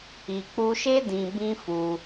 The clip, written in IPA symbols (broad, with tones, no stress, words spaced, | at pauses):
i˨k͡pu˧ʃe˦ dĩ˧ bĩ˦fu˧